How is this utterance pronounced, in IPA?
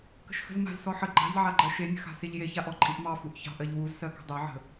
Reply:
k ə̤ ʃ x ə̤ z m a̤ z s ɔ ħ ə ɡ͡ǃ ɑ̤ ʎ ʕ a ɡ͡ǃ ɜ ʃ e nʲ ə̤ x a̤ s e ʎ j e ç a ʔ ɔ ǃʼ i ʔ m ɑ f u ʔ ç ɑ̤ ʔ ɜ ʎ w u z s ɜ k ə̤ dˤ e ʕ ə̤

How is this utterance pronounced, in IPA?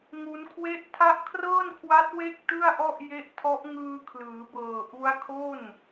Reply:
ŋ u˦˥ n kʰ w e˥˩ ʔ tʰ a˦˥ ʔ kʰ r ɤː˥˩ n kʰ w a˦˥ t̚ w e˥˩ k̚ t ɯ˥˩ a̯ ʔ ɔ˥˩ ʔ j e˦˥ ʔ tʰ ɔ˦˥ ʔ ŋ ɯː˧ kʰ l ɯː˩˦ b ɤː˨˩ ʔ u˦˥ a̯ kʰ o˥˩ n

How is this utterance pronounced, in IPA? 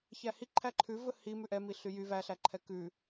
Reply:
ç æ h i ǃʰ æ ǃʰ ʉ v ɵ h i m ʉ ʔ ɛ m i ɬ y j y v æ ɬ æ ǃʰ ɛ k ʉ

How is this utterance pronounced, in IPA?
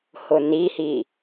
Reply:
h ʊ n i h i

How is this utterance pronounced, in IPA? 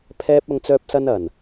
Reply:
pʰ ɛː˥ p̚ ɐ˧ ŋ t͡s œː˧ p̚ s ɐ˧ n ɐ˨˩ n

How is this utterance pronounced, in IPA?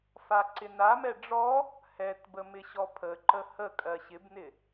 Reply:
f a ǀ ɪ n a m ɛ ɖ͡ʐ ɔ | h ɛ t b ə m ɪ ɕ ɔ pʰ ə ǃ ə h ə kʼ ɜ ɕ ɪ b n ɪ

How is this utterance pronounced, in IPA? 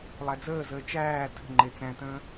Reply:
lˠ æ d͡z əː z əː t͡ʃ æː tʰ ə̤ ŋ͡ǃ e t͡s æ̃ t ə̃ː

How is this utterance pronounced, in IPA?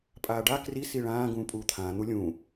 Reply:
pʼ aː ɖ a k r i s i ɭ ãː ɡ ũː pʼ uː t̪ʰ ãː n̪ u lʲ ũː

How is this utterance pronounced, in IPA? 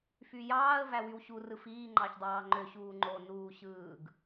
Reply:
f y j ɑː ə̯ v æ w y w ɕ u r ɯ f iː ŋ͡ǃ ɑ ç dˤ ɑː ŋ͡ǃ ø ɕ uː ŋ͡ǃ o n uː ɕ ɯː ɡ

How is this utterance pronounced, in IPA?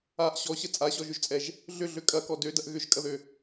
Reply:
a ʔ ɕ ɔ ɕ ə t͡sʼ a ɕ ɔ ʒ ʏ ʒ t͡sʼ ɛ ʒ | ɮ ʏ ɮ ø kʼ ɐ k ɔ d ø d ɐ ʔ ɣ ʏ ʒ kʼ ɐ ð ø

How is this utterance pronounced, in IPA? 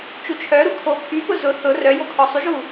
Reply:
t͡ʃ u t͡ʃʰ œ ɾ u kʰ o pʰ y p ʊ z ʊ θ ʊ r œ j o kʰ ɔ sˤ y ʒ u

